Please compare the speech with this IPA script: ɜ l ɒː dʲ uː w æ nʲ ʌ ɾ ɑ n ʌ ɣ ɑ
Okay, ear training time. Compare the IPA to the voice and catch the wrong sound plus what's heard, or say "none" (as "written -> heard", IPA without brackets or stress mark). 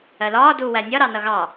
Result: dʲ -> d